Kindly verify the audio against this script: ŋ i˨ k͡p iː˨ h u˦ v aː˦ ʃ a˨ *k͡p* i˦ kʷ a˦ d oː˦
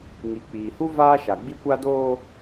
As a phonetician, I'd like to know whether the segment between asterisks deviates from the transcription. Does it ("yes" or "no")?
yes